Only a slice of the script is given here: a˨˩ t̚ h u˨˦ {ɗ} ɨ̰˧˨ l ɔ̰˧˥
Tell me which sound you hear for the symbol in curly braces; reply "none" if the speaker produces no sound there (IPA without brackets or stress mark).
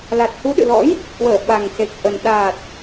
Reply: ɗ